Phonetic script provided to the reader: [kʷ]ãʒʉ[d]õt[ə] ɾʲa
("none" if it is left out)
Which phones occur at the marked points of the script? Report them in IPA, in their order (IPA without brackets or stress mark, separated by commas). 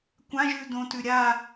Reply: kʷ, d, ʉ